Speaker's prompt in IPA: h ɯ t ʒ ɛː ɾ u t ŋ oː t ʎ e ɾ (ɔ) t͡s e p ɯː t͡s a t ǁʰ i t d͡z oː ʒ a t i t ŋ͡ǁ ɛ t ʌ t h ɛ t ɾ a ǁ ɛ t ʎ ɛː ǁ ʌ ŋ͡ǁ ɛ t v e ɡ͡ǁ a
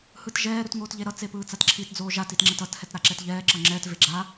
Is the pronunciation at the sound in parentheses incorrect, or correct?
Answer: incorrect